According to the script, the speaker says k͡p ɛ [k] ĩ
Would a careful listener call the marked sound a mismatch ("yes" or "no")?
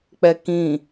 no